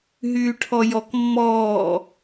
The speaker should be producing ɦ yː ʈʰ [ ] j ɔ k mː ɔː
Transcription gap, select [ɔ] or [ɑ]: ɔ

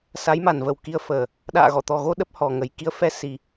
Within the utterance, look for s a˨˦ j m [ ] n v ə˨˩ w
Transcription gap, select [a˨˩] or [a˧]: a˨˩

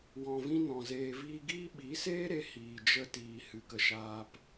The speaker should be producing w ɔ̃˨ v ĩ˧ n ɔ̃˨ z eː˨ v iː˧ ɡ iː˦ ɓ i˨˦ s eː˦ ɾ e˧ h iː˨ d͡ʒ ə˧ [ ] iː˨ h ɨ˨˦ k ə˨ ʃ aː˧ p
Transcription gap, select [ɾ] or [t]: t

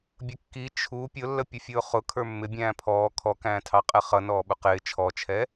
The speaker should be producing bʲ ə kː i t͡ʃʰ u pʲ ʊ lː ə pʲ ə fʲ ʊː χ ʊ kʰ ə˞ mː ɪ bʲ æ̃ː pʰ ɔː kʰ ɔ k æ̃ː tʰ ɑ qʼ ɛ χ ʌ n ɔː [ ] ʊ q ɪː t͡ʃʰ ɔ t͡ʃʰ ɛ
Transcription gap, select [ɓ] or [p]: ɓ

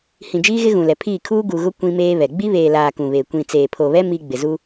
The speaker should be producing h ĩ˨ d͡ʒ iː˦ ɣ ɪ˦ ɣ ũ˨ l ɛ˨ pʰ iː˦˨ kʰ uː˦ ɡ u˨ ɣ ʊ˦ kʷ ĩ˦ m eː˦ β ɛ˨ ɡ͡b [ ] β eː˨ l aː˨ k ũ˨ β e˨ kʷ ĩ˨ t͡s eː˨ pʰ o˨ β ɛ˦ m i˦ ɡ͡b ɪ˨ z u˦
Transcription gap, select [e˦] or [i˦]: i˦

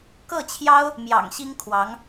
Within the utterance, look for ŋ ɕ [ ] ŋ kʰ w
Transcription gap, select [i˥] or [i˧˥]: i˥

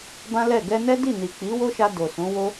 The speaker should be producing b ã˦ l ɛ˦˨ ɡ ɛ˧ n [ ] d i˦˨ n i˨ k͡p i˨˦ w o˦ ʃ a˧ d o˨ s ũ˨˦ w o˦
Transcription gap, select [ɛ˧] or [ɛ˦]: ɛ˦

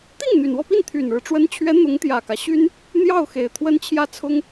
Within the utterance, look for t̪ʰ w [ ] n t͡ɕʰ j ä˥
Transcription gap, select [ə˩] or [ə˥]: ə˥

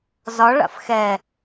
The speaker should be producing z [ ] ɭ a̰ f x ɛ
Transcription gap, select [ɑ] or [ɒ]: ɒ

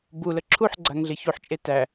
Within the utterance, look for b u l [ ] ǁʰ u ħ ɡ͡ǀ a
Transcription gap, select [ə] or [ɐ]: ə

